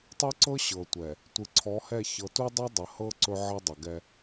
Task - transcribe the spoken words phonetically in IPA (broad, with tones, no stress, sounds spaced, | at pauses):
tˤ u˦ ǀ ɤ˦ ɕ ɤ˨ tʷ ɛ˨ | tʷ ɨ˨ ǀʰ ɔ˨˦ h ɛ˦˨ ç ɤ˨ t u˦ dˤ o˦ dˤ ə˨ h ɤ˦ ǀ ɵ˦ ʕ ə˦ dˤ ə˨ ɡ ɛ˦